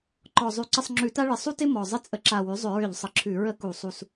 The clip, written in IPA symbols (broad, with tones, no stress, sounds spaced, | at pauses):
ǃ ɔ˨˩ zˤ ʉ˧˩˧ ǀ ə˥˧ sˤ ŋ͡ǁ ʉ˧˩˧ t a˥ ɭ ɪ˨˩ sˤ u˥ t ɪ˥ m ɔ˨˩ zˤ ɪ˥ t͡sʼ ə˧ ǁ a˨˩ w ʉ˩˥ zˤ ʏ˧˩˧ ɹ ʏ˧˩˧ ʎ sˤ ə˩˥ ǁʰ ʉ˧˩˧ ɹ ə˥˧ k u˧˩˧ sˤ u˨˩ s